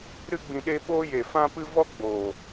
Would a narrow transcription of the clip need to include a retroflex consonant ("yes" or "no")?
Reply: no